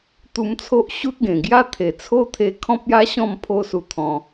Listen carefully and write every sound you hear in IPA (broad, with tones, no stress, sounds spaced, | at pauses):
t̪ u˧ m t͡sʰ o˦ ʔ ɕ u˦ t̚ ɡ ẽ˨˩ ɡ j a˦ t̪ʰ e˨˩ t͡sʰ o˦ t̪ʰ e˧ kʰ ɔ̃˦ p̚ j a˦ ɕ ɔ̃˥˧ m pʰ o˦ s u˧ t̪ʰ ɔ̃˧